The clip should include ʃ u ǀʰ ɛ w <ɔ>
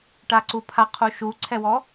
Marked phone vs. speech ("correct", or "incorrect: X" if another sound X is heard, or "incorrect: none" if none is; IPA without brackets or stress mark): correct